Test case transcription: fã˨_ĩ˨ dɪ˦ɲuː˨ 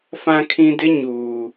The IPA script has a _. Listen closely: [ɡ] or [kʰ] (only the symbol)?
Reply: kʰ